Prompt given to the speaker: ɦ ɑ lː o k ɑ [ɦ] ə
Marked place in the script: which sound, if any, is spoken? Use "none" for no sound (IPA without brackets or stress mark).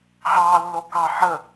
ħ